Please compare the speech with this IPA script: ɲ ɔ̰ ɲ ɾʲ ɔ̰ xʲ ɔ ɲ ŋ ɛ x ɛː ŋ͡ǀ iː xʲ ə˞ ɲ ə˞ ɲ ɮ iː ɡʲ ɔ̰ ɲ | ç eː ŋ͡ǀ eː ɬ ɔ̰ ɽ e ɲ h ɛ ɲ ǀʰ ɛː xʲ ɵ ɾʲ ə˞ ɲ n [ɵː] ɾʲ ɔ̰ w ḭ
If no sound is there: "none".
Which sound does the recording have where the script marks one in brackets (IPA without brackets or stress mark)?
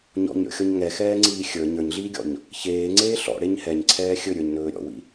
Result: ɵː